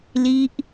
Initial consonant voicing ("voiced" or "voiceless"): voiced